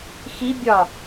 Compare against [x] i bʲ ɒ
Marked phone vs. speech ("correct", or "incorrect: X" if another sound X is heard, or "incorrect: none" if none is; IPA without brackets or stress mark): correct